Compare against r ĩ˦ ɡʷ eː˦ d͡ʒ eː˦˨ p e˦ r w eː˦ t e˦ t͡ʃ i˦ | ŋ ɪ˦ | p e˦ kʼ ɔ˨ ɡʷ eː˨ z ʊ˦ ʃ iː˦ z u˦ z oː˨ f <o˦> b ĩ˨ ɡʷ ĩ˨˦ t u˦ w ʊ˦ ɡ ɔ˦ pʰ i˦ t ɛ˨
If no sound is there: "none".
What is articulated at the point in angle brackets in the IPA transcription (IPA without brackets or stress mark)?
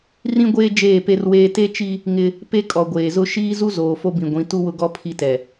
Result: o˦